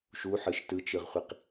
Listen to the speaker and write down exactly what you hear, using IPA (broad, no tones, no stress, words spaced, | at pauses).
ʃuħɯʃ tɯt͡ʃɯʁχʷiq